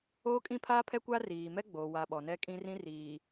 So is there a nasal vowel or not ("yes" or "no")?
yes